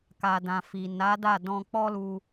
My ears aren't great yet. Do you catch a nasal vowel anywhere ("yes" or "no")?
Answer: yes